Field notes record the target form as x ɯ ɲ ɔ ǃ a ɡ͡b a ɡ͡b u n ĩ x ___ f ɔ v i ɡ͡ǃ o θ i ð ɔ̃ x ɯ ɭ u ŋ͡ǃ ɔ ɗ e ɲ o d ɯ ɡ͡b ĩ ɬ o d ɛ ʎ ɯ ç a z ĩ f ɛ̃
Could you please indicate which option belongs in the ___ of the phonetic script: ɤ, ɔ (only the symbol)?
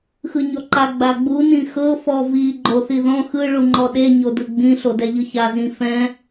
ɤ